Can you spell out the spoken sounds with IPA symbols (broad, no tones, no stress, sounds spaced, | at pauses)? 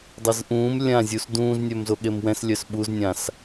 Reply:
dˤ ɛ z ʔ ũː m lʲ ã zʲ u s d ũː z nʲ œ m z o ɠ e m w ɛ̃ s lʲ œ s ɓ u z nʲ ã s